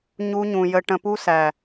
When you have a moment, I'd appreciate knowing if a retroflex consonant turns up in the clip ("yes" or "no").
yes